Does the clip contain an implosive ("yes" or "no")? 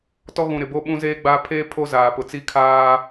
yes